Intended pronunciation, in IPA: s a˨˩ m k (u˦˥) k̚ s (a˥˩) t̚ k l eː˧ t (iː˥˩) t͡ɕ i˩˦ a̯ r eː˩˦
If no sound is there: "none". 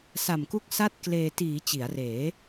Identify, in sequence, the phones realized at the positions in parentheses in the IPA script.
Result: u˦˥, a˥˩, iː˩˦

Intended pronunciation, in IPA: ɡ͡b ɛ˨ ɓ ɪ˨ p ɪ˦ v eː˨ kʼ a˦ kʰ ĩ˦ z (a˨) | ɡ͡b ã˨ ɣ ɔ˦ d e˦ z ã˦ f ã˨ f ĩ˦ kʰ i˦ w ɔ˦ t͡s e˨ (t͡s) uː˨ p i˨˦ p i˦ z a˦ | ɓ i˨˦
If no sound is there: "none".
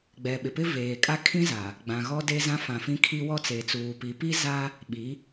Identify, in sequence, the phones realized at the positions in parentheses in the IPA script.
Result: a˨, t͡s

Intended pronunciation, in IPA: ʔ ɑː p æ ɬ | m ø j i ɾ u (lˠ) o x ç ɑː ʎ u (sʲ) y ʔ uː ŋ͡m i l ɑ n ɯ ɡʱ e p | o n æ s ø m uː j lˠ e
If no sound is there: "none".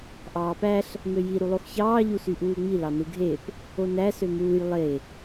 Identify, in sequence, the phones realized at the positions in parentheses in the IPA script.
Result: lˠ, s

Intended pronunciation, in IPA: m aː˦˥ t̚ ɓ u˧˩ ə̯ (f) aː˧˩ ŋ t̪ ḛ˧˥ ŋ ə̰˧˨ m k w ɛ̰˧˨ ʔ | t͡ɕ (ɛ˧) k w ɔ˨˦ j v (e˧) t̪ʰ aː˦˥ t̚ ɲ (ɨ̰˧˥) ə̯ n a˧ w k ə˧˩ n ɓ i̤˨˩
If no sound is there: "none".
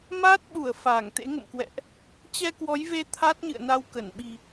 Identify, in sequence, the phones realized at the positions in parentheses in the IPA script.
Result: f, ɛ˧, e˧, ɨ̰˧˨

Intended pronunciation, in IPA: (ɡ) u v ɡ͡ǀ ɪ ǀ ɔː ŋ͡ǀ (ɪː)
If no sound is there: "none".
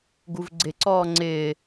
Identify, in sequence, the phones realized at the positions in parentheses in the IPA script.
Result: ɡ, ɪː

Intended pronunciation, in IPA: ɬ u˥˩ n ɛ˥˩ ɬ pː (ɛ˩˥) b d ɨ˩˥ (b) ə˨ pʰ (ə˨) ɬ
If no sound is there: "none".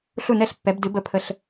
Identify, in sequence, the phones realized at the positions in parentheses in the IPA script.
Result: ɛ˩˥, b, ə˨

